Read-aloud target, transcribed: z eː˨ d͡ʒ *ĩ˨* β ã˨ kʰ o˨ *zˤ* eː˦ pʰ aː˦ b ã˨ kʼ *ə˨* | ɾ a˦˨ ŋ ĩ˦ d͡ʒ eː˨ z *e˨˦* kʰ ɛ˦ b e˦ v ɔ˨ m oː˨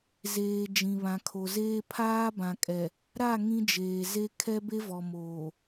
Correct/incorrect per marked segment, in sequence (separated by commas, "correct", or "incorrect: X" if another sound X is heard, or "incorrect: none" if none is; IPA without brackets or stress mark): correct, incorrect: z, incorrect: ɛ˨, incorrect: e˦